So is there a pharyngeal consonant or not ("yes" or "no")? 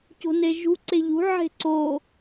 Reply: yes